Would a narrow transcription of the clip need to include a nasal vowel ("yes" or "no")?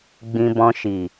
yes